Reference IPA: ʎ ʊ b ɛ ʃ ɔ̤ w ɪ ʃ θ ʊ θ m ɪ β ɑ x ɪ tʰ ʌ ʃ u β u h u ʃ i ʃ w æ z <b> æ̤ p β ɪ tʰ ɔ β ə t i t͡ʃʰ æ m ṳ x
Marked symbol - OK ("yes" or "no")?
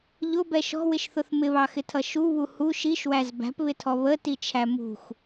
yes